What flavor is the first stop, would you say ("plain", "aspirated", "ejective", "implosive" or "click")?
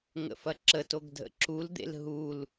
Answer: click